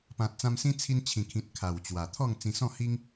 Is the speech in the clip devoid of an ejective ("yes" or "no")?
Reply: yes